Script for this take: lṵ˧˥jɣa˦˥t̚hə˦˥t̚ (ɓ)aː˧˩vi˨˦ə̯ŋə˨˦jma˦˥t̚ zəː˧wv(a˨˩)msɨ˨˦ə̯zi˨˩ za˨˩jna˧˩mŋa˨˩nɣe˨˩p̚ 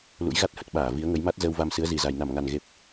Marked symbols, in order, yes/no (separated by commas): yes, no